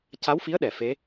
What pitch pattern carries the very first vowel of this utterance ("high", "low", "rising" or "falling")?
rising